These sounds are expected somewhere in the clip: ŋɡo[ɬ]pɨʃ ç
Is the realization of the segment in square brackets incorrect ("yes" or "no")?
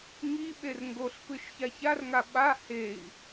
no